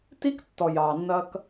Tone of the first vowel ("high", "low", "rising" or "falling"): high